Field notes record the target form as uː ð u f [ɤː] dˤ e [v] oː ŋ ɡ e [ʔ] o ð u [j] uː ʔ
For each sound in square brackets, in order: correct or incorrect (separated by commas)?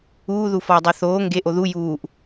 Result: incorrect, incorrect, correct, correct